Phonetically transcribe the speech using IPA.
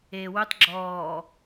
eː w ʉ tˤ ɡ͡ǁ ɔː

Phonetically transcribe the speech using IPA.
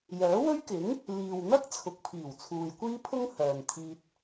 j œː˨˥ w ɵ˥ ɥ k ɪ˨˥ ŋ | l iː˨ w n̪ ɐ˥ k̚ t͡sʰ ʊ˨ k̚ pʰ iː˨˩ w t͡sʰ uː˨ j kʷ iː˥ pʰ ʊ˥ ŋ h œː˨ n t̪ʰ iː˧ t̚

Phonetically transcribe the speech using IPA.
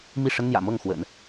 m i˥˩ ʂ ə˥ n n̪ j ä̰˨˩ m ɤ˥˩ ŋ x w ə̰˨˩˦ n

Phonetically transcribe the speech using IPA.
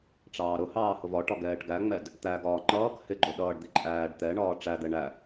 ʈ͡ʂ ɑː ɾ ʊ h ɑː h ʊ v ɒ ʈ ɒ ɡ ɛː ʈ ɡ æ ŋ͡m ɛ d | t̪ æ ɡ ɒː ŋ͡ǃ ʌː k h ɪ ɡ͡ǃ ʊ ɗ ʌː ɖ d̪ i ǃʼ æː ɖ t̪ ɛ ɳ ɒː ʈ͡ʂ æ d̪ ɛ ɳ æ

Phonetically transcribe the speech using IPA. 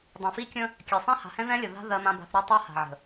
dˤ õ˨ f i˦ kʲ ə̃˦ | kʲ ɛ˨ sˤ ɛ̃˦ h a̤˨ h ɛ̃˦ ð ɛ̃˦ lʲ ə˨ ð a̤˦ ð ɜ˦ m ã˦ b a̤˦ θ ɾ ɜ˦ tˤ ɜ˦ h a̤˨ ʕ ə̤˨

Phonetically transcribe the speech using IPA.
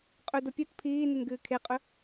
qʼ ɵ d o pʲ u t pʰ iː n ɨ n ɡ ɨː kʰ e qʼ ɵ

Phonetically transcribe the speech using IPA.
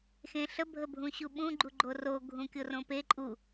x ẽ ɬ ə bʱ ə bʱ ũ ɕ u ɓ ũ ɡ͡ǃ u ɡ͡ǃ o r o ɡʱ ũ kʲ o r õ p e ǃʼ u

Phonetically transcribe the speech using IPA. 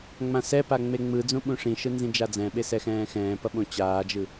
ŋ͡m ã s ɛ p a ŋ͡m e ŋ͡m ɯ d͡z ũ ɓ ũ ʂ ĩ ʃ ɯ n z ĩ d͡ʒ a d͡z ɛ̃ ɓ e s ɛ x ɛ̃ː x ɛ̃ː p ʌ ɓ õ t͡ɕ aː d͡ʒ ɯ

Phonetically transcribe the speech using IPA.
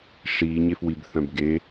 ʂ iː ɲ e f w i b θ œ̃ b ɡ e

